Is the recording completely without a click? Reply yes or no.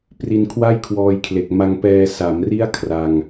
yes